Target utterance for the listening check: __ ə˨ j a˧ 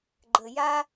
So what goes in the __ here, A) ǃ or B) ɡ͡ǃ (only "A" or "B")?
B